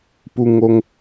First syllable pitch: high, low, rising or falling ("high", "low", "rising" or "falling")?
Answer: high